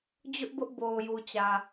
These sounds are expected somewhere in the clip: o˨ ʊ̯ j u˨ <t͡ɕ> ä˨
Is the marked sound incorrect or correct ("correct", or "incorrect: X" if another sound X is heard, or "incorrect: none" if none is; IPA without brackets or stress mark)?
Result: correct